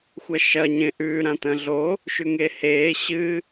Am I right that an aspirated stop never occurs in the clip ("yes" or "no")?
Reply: yes